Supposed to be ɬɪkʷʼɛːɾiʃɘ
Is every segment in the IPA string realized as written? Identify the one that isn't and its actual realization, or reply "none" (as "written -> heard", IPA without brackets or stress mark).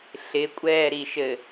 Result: none